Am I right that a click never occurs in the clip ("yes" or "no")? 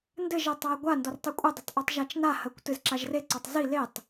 no